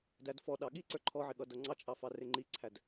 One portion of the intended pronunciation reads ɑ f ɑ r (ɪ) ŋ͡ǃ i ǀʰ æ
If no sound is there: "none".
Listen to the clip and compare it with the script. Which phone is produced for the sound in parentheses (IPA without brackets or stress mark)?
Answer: ɪ